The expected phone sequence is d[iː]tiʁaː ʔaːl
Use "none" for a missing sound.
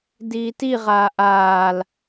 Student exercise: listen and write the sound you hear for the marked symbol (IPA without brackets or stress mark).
iː